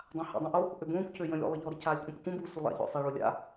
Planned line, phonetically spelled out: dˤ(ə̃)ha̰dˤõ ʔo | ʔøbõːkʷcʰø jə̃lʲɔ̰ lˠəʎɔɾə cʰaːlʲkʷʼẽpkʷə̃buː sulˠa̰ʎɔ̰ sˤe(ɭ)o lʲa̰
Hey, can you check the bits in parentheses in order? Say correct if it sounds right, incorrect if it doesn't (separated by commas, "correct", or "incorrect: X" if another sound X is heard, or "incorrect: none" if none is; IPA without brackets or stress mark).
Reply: incorrect: ã, correct